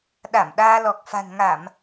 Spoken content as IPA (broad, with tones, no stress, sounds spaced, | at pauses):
ɗ a˧˩ m ɗ aː˧ l ɔ˨˩ k̚ f a̤˨˩ n ŋ a˧˩˨ m